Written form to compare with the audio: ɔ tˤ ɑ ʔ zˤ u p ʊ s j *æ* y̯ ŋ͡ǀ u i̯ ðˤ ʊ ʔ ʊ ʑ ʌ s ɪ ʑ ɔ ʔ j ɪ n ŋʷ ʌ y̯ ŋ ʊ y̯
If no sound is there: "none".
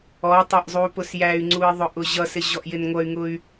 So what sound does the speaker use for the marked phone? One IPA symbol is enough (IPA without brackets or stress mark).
æ